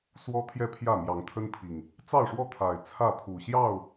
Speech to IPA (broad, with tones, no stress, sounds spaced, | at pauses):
s w ɔ˦ t̪ʰ j ɛ˥˨ pʰ j ä˥˨ m j ɑ˨˦ ŋ t̪ʰ ə˦ n pʰ i˨˩ ŋ | t͡s ɑ˥˨ ʊ̯ ʂ w ɔ˥˨ t̪ʰ a˨˩ ɪ̯ t͡sʰ ä˥˨ pʰ u˨˩ ɕ j ɑ˥˨ ʊ̯